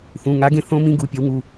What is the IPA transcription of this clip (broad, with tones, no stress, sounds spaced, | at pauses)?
θ ũ˩˧˩ ŋ a˨˥ ɡ ẽ˨˥ θ õ˦˥ m ĩ˦˥ ɡ u˩˧˩ pʲ ʌ˨˥ w ŋ u˩˧˩